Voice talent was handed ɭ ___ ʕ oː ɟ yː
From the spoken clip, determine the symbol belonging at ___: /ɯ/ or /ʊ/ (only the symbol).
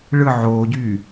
ɯ